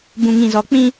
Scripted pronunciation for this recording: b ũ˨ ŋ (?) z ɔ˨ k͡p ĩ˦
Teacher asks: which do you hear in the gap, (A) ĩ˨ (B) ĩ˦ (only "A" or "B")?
A